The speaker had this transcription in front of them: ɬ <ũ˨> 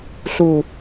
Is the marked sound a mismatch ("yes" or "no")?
yes